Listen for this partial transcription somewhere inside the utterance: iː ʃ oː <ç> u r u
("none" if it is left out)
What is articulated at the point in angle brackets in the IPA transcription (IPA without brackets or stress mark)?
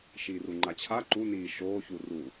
ç